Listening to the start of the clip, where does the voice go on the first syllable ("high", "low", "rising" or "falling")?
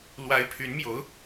rising